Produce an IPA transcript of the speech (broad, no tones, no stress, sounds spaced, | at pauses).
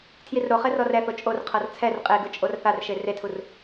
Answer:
tʰ j i r ɾ o χ ɛ r ɔ r ɛ θ o t͡ʃʼ o r qʰ ɤ r t͡sʰ ɛ r qʼ e ɡ ɯ t͡ʃʼ o r θ a r ʃ e r e tʰ u r